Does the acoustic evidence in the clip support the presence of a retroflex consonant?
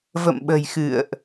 no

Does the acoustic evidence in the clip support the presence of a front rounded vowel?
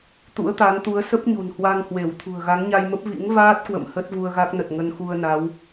no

